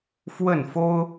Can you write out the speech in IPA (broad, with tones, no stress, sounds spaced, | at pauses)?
f w ə˥˩ n f o˥ ʊ̯